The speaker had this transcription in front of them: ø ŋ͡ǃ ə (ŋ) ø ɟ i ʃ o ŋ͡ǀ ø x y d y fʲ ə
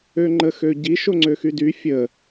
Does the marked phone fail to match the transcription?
yes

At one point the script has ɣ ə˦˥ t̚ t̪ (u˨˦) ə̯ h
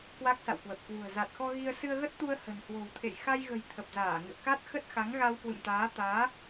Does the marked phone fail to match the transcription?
yes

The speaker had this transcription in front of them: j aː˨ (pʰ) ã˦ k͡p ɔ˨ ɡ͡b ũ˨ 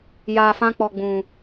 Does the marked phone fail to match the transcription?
yes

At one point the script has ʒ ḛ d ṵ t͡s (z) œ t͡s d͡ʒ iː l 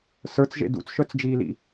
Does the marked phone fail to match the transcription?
yes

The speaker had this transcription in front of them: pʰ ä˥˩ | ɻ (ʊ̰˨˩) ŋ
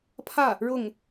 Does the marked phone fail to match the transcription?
yes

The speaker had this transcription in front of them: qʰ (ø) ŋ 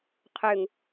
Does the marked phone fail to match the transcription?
no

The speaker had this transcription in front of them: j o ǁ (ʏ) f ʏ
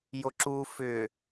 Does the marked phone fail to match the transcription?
yes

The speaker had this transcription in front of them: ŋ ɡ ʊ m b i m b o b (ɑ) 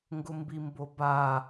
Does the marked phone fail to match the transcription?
yes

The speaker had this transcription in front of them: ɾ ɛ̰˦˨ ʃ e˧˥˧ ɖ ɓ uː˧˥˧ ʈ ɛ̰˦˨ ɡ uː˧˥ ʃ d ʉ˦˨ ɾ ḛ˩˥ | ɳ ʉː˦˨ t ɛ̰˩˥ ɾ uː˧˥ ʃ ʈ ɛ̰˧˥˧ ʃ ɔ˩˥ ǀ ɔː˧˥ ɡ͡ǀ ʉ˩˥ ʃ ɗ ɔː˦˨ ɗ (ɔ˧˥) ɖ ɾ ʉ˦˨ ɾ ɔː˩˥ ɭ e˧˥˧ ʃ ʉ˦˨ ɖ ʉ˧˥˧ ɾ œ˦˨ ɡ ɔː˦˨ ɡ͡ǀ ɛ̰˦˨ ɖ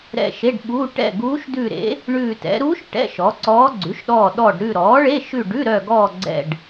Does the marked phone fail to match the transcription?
yes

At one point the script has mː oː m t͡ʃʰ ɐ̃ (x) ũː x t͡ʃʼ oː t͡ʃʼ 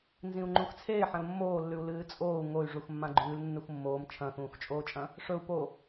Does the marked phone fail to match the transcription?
no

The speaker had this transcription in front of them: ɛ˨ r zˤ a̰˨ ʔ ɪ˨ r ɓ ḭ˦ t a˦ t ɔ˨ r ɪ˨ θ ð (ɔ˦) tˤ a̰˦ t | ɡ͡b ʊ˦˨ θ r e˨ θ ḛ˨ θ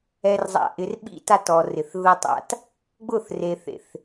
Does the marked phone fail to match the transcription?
yes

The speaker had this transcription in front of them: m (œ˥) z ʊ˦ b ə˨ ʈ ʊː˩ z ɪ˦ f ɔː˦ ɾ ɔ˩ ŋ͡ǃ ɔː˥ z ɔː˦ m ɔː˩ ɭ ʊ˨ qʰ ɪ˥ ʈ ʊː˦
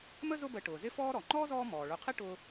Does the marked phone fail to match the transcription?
yes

